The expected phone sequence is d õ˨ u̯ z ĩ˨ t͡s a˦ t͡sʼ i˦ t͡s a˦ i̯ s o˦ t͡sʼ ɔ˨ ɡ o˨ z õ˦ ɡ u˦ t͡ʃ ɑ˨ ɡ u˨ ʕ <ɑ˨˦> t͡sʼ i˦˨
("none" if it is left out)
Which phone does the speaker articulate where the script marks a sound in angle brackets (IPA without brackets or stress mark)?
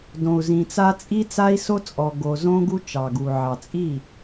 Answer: ɑ˨